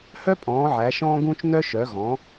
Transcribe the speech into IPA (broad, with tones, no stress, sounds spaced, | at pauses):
h œ˥ pʼ ɔ̃ː˨˦ ʕ æ˨˦ ʃ ɔ̃ː˥ ɡ ũː˥ t͡ʃ n œ˥ ʃ œ˨˦ ɣ ɔ̃˨˦